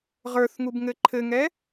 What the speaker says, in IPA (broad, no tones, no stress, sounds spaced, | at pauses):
ʁ ə˞ θ ŋ u b ŋ ɘ ǃʰ ɘ ŋ ɛ